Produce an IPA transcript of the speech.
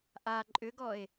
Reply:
ʔ a ǃʼ ʏ ɡ ɔ e̯

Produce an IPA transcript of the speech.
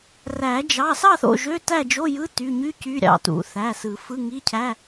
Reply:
r æ˨˩˦ d͡ʒ ɑ˩˧˩ s ɑ˥˨ θ o̰˩˧˩ ʒ ø˧˥˧ t æ˥˨ d͡ʒ o˧˥˧ j ɯ˧˥˧ t y˩˧˩ ɲ y˧˥˧ c y˧˥˧ ɾʲ ɑ̰˩˧˩ t ṵ˨˩˦ θ æ˩˧˩ s ɯ˨˩˦ f ɯ˧˥˧ ŋ i˧˥˧ cʰ æ˧˥˧

